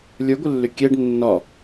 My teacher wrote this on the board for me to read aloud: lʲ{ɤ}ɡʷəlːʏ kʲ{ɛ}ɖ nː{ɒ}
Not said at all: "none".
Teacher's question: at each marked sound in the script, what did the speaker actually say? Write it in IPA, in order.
ə˞, ɛ, ɒ

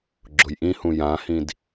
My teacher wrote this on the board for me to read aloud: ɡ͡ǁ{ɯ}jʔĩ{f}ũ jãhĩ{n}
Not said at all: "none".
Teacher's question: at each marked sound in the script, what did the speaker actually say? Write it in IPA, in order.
ʊ, h, d

